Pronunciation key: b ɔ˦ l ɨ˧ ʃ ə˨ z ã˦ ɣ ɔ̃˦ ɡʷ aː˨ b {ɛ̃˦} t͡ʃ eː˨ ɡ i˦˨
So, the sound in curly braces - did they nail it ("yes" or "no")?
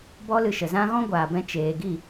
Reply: no